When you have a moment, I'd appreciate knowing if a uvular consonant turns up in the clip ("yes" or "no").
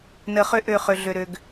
yes